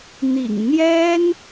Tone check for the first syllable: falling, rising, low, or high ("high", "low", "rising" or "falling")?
low